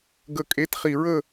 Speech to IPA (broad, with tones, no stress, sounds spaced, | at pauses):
ɡ ə˨˩ kʼ e˨˦ t χ i˨˩ ɹ ə˥˨